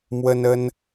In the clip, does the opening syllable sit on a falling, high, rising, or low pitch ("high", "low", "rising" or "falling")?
high